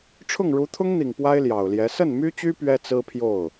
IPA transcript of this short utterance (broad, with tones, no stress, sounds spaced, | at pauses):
ʈ͡ʂʰ ʊ˥˩ ŋ ɻ u˧˥ t̪ʰ ʊ˥ ŋ n̪ i˨˩ ŋ p w a˥ ɪ̯ l j ɑ˨˩ ʊ̯ l j ɛ˧˥ s ə˥˩ n m y˥ t͡ɕ y˥ p ɥ ɛ˥ t͡s ɹ̩˥ pʰ j o˥˩ ʊ̯